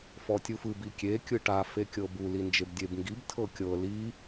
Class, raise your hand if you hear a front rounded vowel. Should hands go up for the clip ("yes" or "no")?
no